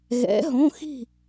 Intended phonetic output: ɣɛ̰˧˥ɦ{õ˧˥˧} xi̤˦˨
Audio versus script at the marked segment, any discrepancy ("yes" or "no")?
no